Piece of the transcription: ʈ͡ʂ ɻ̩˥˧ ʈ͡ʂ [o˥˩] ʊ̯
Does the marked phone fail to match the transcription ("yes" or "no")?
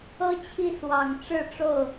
no